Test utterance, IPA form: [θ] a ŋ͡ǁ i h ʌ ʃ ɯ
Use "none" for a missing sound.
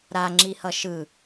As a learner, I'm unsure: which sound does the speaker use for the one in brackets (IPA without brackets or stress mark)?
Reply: ɾ